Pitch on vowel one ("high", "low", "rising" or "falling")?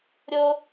high